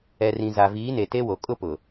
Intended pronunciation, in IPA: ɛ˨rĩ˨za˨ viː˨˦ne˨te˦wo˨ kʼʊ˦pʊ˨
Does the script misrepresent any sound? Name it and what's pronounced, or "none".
none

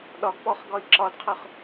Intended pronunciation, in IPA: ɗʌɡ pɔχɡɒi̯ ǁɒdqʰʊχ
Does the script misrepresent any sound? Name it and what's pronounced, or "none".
ʌ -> ɒ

